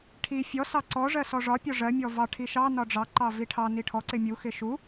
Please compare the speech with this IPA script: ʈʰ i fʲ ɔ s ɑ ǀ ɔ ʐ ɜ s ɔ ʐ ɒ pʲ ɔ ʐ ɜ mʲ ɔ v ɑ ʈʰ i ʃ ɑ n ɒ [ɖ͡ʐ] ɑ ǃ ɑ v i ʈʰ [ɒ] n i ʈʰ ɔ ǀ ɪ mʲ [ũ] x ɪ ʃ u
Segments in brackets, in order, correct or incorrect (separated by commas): correct, incorrect, incorrect